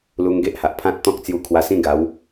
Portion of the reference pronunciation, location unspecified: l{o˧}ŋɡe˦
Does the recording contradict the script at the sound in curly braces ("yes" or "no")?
yes